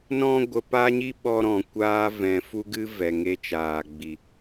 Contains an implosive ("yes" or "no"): yes